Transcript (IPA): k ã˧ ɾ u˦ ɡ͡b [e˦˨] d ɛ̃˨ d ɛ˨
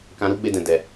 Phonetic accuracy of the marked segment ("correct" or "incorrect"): incorrect